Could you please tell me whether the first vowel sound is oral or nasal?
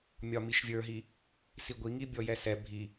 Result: oral